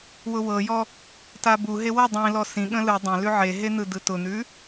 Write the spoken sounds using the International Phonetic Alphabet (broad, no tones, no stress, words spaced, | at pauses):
wʊwɤjɔ | tabuɦe wʊ dˤĩlɔ sĩɠə̃ lɯ dˤə̃ lʉʕeɦe n̪ɯdɯtʊn̪ʉ